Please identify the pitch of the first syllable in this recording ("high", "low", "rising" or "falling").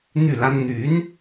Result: falling